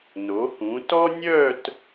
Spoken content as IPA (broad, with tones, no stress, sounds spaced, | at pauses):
n o˩˧ h ũ˩˧ t ɔ˥ nʲ œ˥˧ t